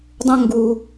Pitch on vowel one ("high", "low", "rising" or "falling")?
high